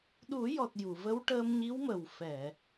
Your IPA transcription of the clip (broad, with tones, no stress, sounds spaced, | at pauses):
ɗ u˨˩˦ j ɔ˨˩ t̚ j u˨˩˨ v ə˧˥ w ʈ əː˧ m ɲ i˧˥ w m ə˨˩ w f ɛ˨˩˨